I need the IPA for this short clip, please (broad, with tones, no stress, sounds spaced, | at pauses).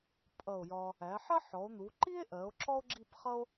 pʼ ʌ˧˩ o̯ j ɒ˧ | æ˩˧ ħ ɜ˥ ħ ɔ˩˧ o̯ n̪ u˩˧ ǃ i˥ e̯ ʔ ɜ˩˧ o̯ ǁ ɔ˥ o̯ ɡ͡ǁ i˥˧ p χ ʌ˥ o̯